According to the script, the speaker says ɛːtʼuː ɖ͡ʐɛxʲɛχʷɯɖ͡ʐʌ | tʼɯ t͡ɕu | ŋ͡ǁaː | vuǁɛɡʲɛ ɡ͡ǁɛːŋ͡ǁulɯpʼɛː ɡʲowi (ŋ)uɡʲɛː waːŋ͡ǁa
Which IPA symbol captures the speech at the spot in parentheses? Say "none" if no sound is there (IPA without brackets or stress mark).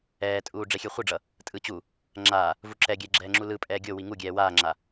ŋ